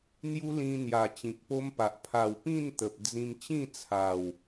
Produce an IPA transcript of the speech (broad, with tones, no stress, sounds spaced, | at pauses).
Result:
n̪ j u˦ l ĩ˧ n̪ j a˨˩ t͡ɕ ĩ˨ k̚ p o˦ m p a˨ ʔ pʰ a˨˩ w p ĩ˥˧ n t̪ ə˨ p̚ d͡z ĩ˧ m t͡ɕ ĩ˥˧ t͡sʰ a˨˩ w